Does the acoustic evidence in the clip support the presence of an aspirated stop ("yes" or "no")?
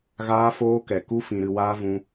no